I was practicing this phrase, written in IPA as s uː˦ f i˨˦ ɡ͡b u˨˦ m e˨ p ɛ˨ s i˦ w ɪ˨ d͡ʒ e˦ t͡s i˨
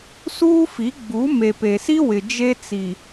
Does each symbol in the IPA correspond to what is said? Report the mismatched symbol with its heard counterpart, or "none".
ɛ˨ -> e˨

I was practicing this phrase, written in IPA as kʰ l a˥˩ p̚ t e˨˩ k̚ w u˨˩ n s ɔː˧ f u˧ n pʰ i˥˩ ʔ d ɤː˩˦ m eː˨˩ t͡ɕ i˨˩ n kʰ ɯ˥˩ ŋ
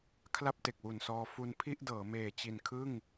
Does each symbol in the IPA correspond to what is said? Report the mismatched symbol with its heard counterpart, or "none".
none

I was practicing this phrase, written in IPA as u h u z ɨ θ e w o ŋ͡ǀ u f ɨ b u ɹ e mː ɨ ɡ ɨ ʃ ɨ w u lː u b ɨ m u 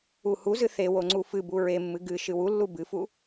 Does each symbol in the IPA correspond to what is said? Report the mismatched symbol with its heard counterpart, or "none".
m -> f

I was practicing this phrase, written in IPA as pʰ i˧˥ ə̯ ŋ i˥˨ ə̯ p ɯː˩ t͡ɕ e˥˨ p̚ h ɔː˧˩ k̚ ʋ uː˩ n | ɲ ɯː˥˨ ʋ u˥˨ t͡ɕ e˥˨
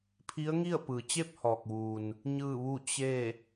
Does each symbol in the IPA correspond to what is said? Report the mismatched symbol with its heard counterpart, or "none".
none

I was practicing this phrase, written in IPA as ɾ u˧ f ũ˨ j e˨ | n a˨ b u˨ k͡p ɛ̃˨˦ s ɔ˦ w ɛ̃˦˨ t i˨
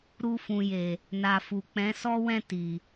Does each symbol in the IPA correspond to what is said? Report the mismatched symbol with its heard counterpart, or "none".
b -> f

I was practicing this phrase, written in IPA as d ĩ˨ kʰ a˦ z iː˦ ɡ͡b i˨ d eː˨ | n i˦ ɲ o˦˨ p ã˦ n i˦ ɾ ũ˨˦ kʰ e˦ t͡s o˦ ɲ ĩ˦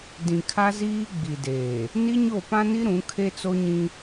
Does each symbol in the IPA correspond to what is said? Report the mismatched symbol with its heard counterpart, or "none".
none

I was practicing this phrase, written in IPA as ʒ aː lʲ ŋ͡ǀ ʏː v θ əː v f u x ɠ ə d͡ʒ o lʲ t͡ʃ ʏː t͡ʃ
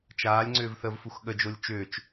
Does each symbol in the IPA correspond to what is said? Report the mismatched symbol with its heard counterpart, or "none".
ʒ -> t͡ʃ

